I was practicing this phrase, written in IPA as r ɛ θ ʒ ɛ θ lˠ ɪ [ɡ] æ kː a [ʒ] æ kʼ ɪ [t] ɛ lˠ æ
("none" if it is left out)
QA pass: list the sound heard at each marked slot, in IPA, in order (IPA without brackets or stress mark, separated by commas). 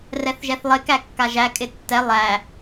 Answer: k, ʒ, tː